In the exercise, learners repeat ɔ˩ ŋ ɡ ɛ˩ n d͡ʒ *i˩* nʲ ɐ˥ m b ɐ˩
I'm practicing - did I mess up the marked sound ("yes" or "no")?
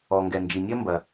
no